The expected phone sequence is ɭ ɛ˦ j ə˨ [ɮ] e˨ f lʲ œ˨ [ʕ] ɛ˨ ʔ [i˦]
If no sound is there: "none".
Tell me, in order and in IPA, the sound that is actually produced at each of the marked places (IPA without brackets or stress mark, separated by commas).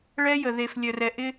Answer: ð, r, ɪ˦